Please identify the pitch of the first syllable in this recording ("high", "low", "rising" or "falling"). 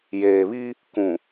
low